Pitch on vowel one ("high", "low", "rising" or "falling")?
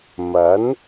rising